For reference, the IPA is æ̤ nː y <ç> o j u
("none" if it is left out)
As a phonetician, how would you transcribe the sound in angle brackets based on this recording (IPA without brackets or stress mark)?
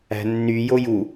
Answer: j